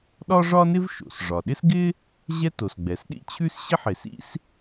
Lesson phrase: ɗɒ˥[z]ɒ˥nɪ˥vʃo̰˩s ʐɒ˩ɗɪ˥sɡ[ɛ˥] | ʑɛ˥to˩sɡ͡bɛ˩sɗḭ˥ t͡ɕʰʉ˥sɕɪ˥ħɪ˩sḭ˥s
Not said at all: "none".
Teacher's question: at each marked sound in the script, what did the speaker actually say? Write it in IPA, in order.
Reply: ʐ, ɪ˥

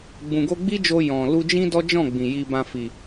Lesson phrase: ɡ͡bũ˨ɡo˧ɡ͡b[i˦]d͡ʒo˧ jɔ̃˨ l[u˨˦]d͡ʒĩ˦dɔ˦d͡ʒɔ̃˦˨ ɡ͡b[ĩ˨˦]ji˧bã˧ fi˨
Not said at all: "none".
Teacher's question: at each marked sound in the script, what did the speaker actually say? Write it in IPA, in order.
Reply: i˦, u˧, ĩ˨

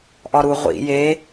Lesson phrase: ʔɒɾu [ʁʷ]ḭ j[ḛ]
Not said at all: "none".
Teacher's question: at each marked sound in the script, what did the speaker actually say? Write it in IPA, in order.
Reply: ʁʷ, e

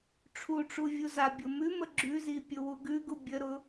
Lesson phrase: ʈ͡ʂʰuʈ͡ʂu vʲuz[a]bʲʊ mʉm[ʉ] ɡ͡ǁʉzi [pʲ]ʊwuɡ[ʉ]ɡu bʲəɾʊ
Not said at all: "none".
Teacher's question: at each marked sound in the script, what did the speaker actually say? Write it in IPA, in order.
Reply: a, ə, pʲ, ʉ

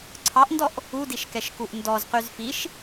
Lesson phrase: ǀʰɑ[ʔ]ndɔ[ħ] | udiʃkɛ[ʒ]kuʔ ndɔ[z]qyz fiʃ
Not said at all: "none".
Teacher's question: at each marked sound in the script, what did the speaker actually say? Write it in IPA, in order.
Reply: ʔ, ʔ, ʃ, z

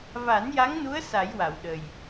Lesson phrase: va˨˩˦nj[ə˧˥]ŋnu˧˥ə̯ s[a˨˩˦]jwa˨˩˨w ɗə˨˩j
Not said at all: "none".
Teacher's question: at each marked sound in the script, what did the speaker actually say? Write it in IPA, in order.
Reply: a˧˥, a˨˩˦

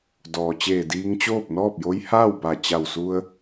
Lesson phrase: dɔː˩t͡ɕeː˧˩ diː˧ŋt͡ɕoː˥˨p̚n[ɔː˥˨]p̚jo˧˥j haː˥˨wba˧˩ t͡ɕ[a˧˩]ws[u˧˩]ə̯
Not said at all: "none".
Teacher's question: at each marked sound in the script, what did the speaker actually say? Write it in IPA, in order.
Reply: ɔː˥˨, a˧˩, u˧

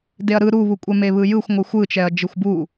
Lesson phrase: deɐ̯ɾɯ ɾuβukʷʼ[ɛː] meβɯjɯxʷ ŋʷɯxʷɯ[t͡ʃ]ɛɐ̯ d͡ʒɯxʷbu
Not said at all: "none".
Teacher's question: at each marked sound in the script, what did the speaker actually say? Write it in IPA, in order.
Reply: ɛ, t͡ʃ

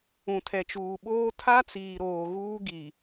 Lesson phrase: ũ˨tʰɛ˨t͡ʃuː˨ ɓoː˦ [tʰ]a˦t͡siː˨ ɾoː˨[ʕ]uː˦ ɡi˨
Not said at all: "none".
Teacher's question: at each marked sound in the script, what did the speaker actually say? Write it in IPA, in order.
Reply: tʰ, ɣ

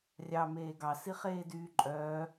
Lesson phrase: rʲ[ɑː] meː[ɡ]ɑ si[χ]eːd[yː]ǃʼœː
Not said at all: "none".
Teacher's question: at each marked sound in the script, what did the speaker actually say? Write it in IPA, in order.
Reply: ɑ, ɡ, χ, yː

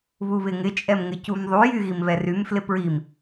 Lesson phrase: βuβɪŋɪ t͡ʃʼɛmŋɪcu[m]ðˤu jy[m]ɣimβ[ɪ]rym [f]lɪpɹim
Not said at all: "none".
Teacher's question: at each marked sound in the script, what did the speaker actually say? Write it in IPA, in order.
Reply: m, none, ɛ, f

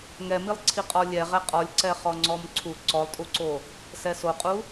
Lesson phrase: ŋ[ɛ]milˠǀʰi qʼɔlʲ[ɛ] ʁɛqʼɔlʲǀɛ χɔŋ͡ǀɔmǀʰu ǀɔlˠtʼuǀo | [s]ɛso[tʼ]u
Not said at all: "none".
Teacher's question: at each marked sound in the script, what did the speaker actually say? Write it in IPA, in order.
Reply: ɛ, ɛ, s, qʼ

